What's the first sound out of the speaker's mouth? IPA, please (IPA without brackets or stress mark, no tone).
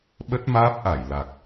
ɓ